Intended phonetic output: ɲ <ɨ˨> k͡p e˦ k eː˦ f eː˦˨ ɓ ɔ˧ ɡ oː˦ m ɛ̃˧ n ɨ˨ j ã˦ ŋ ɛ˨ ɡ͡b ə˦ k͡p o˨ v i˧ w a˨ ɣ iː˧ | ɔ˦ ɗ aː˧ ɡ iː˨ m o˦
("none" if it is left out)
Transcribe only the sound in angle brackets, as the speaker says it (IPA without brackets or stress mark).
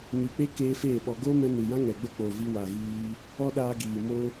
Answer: ɨ˨